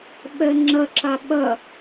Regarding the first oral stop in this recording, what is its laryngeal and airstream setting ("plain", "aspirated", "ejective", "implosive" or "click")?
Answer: implosive